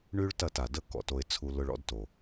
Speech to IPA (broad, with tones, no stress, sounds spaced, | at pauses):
ɳ y˦ ɭ t ɐ˦˨ t a˨ d ə˦ k ɔ̰˨ t o˧ ɪ̯ t͡sʰ u˧ l ʊ˧ ɭ ɔ̰˧ d t o˨